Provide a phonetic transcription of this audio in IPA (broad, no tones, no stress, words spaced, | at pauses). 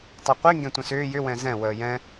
tˤøqʷi ŋɡɛ̃tʷə̃sʏː jʏ wɛ̃zɛ̃ wəːjɛ̃